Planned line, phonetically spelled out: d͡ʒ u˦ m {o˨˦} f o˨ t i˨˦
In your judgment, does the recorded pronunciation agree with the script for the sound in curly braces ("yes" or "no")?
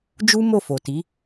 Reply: no